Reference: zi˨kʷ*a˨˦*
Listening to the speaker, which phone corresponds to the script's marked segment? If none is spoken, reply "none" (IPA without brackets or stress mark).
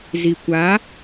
a˨˦